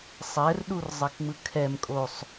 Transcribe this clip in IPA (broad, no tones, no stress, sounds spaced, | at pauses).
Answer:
sˤ ɛ r ɗ u r zˤ ɛ k ŋ͡m ɯ kʰ ɛ m kʼ o sˤ